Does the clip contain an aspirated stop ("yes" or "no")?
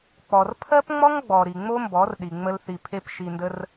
yes